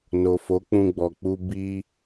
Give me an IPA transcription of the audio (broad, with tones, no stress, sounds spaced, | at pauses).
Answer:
n o˨ f o˨˦ k͡p ũ˧ ɡ͡b ɔ˨ k͡p u˧ b i˧